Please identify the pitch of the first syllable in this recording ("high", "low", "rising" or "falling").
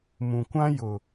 low